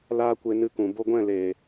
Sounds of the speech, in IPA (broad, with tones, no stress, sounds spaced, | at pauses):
l aː˦ kʷ e˧ n ɨ˧ k ũ˨ b o˧ ɡʷ ɛ̃˦˨ l eː˨